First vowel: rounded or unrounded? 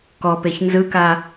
rounded